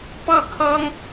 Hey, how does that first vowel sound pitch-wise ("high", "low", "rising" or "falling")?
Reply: falling